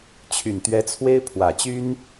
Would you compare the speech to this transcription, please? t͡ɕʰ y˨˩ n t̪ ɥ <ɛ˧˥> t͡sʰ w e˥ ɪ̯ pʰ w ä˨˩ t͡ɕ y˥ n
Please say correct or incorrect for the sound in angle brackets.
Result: correct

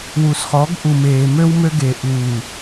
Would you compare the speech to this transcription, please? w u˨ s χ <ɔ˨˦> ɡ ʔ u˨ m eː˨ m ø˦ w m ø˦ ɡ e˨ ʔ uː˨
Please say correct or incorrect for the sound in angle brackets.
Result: correct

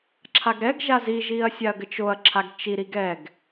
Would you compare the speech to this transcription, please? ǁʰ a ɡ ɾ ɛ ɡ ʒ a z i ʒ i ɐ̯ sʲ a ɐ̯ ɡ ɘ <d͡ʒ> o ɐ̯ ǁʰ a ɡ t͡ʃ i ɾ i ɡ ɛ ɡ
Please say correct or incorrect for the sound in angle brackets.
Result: incorrect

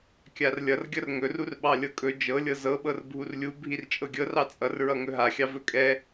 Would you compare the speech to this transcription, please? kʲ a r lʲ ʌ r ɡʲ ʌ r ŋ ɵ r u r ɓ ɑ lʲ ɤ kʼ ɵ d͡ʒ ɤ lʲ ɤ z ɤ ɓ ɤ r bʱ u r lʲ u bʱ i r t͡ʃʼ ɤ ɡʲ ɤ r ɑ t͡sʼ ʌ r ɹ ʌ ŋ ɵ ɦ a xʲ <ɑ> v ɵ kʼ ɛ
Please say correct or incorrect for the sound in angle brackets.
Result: correct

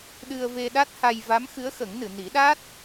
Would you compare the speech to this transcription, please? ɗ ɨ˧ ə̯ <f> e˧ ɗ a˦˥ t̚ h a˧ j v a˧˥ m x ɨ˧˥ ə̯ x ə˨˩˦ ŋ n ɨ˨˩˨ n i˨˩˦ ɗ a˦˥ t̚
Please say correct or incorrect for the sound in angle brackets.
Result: incorrect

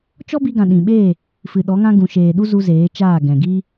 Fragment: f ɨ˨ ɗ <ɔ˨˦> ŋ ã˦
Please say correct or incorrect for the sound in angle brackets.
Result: correct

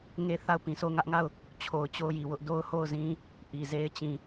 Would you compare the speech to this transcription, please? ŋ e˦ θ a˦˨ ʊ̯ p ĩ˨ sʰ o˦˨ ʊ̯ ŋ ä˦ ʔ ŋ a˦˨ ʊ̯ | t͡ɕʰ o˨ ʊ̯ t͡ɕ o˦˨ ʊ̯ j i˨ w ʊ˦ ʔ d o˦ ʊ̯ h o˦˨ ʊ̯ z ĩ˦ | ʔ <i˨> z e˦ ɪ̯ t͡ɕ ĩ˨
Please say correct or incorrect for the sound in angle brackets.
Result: correct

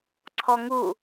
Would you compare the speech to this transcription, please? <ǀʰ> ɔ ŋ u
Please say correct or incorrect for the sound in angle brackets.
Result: correct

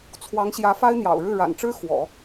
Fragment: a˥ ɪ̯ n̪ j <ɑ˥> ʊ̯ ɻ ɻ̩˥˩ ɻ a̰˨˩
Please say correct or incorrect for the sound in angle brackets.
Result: incorrect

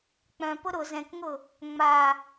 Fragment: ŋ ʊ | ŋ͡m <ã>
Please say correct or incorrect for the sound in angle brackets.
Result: incorrect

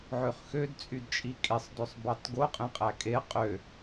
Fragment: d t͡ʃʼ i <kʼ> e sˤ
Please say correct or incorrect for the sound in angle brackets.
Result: correct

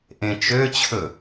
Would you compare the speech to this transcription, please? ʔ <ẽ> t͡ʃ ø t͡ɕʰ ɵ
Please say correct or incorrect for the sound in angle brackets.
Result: correct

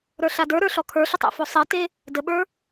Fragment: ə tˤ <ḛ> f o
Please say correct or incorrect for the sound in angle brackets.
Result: correct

